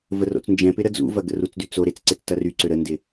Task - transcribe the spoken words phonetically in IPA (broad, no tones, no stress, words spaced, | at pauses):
vəro̰t͡snd͡ʒɛ̃pɪ ɾəd͡zṵvɐ ɡə̰rut͡sdy t͡soɾet͡s ǀet͡stɐryǀø ɾəndɪ